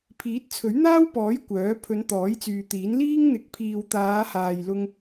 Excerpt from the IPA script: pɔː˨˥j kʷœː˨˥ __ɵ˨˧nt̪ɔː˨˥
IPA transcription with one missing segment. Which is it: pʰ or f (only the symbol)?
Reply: pʰ